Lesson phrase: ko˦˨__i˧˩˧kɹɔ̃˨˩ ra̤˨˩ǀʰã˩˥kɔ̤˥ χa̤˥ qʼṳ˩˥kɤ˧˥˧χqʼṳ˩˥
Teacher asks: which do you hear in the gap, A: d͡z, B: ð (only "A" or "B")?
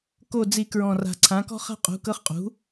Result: A